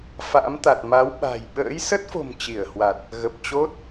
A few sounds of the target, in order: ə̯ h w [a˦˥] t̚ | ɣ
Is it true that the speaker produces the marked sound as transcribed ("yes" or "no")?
no